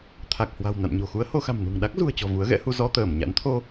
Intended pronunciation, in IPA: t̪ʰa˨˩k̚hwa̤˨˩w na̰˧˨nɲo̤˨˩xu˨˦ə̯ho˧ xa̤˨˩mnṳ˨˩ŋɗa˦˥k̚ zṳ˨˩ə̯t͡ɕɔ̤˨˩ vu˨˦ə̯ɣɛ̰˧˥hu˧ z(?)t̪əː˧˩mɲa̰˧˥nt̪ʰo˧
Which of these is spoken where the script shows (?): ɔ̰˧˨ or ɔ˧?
ɔ˧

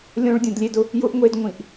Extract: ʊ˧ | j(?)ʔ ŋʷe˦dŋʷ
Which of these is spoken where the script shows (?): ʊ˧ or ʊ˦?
ʊ˧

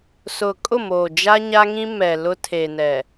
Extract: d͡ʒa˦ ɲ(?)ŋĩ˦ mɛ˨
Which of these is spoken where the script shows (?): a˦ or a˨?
a˦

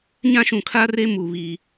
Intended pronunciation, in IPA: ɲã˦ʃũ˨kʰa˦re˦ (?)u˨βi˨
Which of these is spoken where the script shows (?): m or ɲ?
m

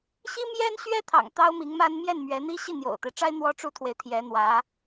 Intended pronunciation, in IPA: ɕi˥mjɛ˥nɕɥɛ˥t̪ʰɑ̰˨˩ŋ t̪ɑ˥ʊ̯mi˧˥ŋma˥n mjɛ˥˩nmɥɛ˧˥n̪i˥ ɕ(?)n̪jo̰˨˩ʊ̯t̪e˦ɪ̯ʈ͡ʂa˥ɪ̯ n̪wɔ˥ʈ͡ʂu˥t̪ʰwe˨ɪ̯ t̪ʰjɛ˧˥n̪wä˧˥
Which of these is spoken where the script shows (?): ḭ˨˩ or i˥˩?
i˥˩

